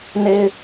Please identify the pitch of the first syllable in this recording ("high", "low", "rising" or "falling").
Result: high